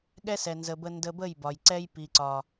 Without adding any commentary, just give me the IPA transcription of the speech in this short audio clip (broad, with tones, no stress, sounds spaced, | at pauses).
ɠ ɛ˦ s ɛ˨ n z ə˧ b ə˦ n d ə˧ b ə˦˨ j b ɒ˨ j ǀ ɛ˦ j p i˨ ǀ ɒ˨